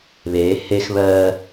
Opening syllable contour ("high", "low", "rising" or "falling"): rising